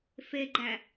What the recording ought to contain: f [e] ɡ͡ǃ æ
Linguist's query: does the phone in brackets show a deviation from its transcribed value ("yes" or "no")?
no